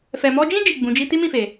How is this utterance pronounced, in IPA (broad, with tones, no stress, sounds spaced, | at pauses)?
f ɛ˨ m ɔ˧ d͡ʒ ĩ˦ d͡ʒ i˦˨ ɡ͡b ũ˨˦ d͡ʒ i˦ t i˦ m ĩ˦˨ f e˨